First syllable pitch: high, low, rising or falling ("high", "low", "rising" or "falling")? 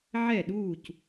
falling